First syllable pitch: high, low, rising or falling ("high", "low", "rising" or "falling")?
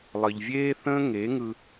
low